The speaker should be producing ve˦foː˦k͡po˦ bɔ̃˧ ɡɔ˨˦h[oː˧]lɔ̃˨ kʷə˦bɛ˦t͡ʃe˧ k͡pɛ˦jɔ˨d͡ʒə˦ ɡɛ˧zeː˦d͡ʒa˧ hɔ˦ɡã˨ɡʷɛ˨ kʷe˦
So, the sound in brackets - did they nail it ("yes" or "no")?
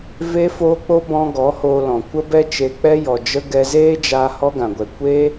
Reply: yes